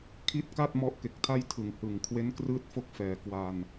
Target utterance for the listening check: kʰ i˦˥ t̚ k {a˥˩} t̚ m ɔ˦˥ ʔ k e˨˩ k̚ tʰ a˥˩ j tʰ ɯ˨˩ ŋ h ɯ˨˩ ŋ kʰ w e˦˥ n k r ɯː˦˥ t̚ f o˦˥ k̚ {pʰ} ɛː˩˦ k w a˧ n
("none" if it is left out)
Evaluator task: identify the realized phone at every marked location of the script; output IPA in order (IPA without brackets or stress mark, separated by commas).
a˥˩, f